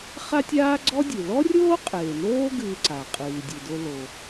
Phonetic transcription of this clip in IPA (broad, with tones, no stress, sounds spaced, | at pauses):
χ a˥ tʲ aː˥ ɡ͡ǀ ɔ˥ dʲ ɨ˩ l ɔ˥ rʲ oː˥ qʼ eː˩ n oː˥ ɡ ɨː˧ ǀ a˩ qʼ ɨː˩ dʲ ɨ˩ d o˧ l o˩